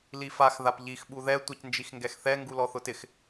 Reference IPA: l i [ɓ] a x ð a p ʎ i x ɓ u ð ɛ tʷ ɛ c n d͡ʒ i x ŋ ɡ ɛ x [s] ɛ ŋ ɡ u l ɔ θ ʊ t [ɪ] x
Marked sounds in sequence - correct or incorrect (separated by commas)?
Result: incorrect, incorrect, correct